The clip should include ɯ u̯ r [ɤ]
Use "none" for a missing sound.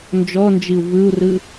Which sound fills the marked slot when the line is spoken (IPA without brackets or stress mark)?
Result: ɯ